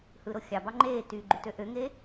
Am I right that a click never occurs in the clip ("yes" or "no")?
no